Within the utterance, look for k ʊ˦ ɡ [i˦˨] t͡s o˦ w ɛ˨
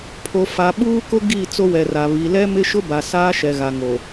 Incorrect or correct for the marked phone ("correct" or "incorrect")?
correct